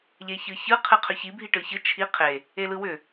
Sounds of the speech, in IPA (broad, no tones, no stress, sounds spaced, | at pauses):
ʎ e ç ɯ ç ɯ qʰ ɨ qʰ ʏ ç i bʱ i ʈ ɯ ç ɯ t͡ʃʰ i qʰ e | e l ɯ w ʏ